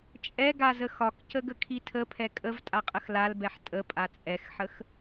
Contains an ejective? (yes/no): yes